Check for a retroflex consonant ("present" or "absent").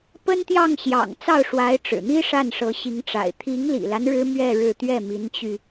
present